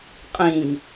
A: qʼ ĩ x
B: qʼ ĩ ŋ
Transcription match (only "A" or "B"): B